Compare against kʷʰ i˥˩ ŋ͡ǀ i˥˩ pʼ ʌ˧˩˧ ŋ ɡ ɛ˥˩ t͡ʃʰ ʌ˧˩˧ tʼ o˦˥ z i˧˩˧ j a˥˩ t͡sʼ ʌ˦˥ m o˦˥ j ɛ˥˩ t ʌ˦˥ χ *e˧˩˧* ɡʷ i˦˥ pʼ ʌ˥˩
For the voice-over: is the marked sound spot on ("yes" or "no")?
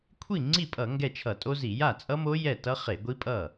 yes